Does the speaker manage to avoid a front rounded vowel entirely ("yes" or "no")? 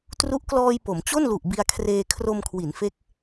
yes